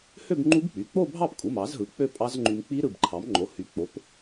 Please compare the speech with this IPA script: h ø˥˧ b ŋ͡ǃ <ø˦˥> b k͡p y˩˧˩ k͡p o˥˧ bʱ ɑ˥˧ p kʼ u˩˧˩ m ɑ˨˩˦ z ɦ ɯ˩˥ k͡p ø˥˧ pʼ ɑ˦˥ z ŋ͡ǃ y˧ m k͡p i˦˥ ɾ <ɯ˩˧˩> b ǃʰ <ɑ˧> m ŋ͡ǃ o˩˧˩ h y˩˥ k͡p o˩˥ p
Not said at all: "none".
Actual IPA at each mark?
u˦˥, ɯ˩˧˩, ɑ˩˥

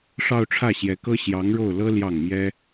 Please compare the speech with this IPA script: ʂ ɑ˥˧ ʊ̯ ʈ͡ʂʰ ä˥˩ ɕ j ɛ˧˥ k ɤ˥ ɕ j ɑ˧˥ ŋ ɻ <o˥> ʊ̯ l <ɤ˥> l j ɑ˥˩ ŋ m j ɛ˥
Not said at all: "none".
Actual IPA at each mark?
o˥˩, ɤ˥

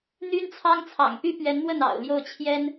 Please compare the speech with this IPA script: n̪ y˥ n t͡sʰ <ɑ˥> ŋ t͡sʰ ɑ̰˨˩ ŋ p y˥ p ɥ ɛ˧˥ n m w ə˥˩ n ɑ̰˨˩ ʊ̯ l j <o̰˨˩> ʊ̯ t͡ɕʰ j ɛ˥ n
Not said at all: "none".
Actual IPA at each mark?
ɑ˥, o˥˩

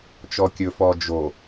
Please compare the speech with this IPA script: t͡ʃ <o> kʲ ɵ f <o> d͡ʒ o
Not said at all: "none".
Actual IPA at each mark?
ɔ, ɔ

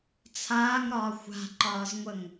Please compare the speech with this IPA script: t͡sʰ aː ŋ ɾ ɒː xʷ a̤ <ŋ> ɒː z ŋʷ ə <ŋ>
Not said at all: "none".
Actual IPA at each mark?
ǃ, ŋ

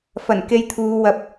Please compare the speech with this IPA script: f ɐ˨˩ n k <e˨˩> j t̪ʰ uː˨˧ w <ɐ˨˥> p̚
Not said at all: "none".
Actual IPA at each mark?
e˧, ɐ˨

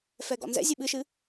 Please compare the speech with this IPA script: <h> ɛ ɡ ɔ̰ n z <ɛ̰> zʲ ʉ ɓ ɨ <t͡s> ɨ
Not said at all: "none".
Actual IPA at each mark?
f, ɛ̰, ʃ

